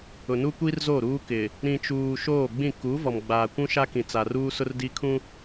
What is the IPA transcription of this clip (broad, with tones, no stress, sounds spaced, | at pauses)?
ʊ˨ n u˦ kʷ i˦ r z o˦˨ ɾ uː˦ k ɪ˨ | ɾ ĩ˨ t͡ʃ uː˨ ʃ oː˦˨ ɡ͡b ĩ˦˨ k u˨˦ v ɔ˨ m ɡ͡b aː˨ kʷ ũ˦ ʃ a˦ k ĩ˨ t͡s a˨ r uː˦ s ʊ˦ r d i˦ kʰ ũ˦